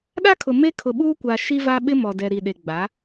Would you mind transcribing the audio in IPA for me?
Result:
ɗ a˦ kʰ ʊ˨ m e˦ kʰ ʊ˨ ɓ uː˦ kʷ a˨ ʃ i˦ v a˦ ɓ ɪ˦ m ɔ˨ d ɛ˨ ɾ i˨ ɗ e˨ ɡ͡b a˨˦

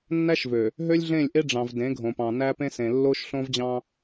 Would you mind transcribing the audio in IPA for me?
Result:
nː æ˦ ʃ v ø˨ | ɦ ø˦ lʲ ɮ ẽ˦˨ lʲ ʔ e˦ ɖ͡ʐ ɑ̃˨ v d ẽ˨˦ ɡʱ õ˨ p ɑ̃˨ n æ˦ p ẽ˦ s ẽ˨ lː o˦ ʃ ɬ õ˦ v d͡ʑ ɑ̃˦

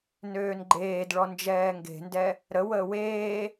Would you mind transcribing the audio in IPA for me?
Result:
n øː n ɡ͡ǃ eː d ɭ ɔ n d͡ʒ ɛː ŋ ɡ e̤ n d ɛ | ɾ ə w əː w eː

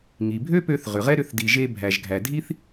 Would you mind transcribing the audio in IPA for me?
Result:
ŋ i˩ bʱ ø˥ p ø˧ θ ʁ ʏ˩ ʁ ɛ˥ ɾ ʏ˧ θ d i˩ ʒ e˧ bʱ æ˩ ʒ ɡʱ æ˩ dʱ i˥ θ

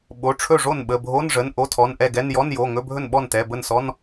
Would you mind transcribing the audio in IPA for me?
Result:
ɓ o˩˧˩ ʈ͡ʂʰ ɵ˥˩ ʐ o˥˩ n ɓ ə˩˧˩ bʱ o˧˥˧ n ʐ ə˩˧˩ n ʔ o˧˥˧ tʰ ɔ˩˧˩ n ʔ ɛ˥˩ ɡ ɛ˧˥˧ n j ɔ˧˥˧ n j o˩˧˩ ŋ ɵ˧˥˧ bʱ ɵ˥˩ n ɓ ɔ˥˩ n t ɛ˩˧˩ b ə˥˩ n s ɔ˧˥˧ n

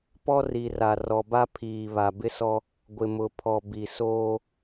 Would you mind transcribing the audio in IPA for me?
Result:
p ɔ˦ r i˨ r a˨ r ɔ˨ b a˦ pʰ iː˨ β a˨ b ɪ˦ s ɔ˦ | ɡʷ ɪ˨ m ʊ˨ pʰ ɔ˨ b i˨ s oː˦

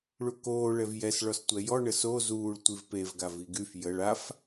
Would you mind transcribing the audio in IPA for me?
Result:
ɭ u k oː ɭ ɛ v j ɛ s ɭ ɔ s tʷ ɛ j ɔ ɳ ə s o z uː ɭ tʷ i v p e v ɡ a v i ɡ y f j ə ɭ a f

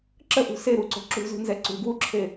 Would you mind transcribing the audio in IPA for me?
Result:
ǁ ə ʔ ṳ s e ɾ u ǀ o̤ ǁ ṳ z ṳ n z ɛ ǀ ṳ ɡ w u ǁʰ e

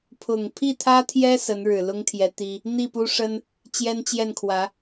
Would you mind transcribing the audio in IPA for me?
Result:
pʰ ʊ˨˩ ŋ pʰ i˥˩ t̪ʰ ä˥ t̪ʰ j ɛ˥ s ə˧˥ n ɻ ɻ̩˨˩ l ʊ˥ ŋ t̪ʰ j ɛ˧˥ t̪ i˥ | n̪ i˥˩ p u˥ ʂ ə˥ n | t͡ɕ j ɛ˥ n t͡ɕ j ɛ˥˩ n kʰ w ä˧˥

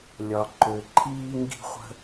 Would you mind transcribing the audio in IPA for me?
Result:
lʲ ɒ˩ ǃ ø˩ ǃʰ iː˧ ŋ ɡ i̤˧ χʷ ə̤˧

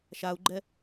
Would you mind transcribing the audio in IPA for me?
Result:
ʃ a u̯ ɡ͡ǃ ɛ

